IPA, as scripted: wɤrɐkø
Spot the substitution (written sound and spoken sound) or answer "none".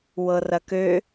none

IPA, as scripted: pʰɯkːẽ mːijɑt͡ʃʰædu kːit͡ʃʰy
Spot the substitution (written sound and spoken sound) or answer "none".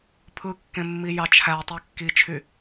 d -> tˤ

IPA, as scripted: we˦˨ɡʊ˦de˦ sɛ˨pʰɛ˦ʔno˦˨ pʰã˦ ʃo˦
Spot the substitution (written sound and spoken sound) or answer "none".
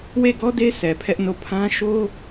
ʊ˦ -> ɔ˦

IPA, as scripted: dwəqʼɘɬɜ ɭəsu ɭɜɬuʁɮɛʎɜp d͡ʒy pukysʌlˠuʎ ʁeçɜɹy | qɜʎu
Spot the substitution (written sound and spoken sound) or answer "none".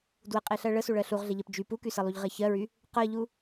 ɘ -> e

